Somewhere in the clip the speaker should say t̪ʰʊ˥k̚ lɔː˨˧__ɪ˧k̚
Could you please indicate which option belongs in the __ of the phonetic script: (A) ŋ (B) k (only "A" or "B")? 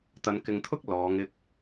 A